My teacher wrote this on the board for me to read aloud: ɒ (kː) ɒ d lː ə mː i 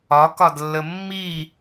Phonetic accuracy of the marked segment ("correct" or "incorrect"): incorrect